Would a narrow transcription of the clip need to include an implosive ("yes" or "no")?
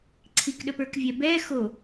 yes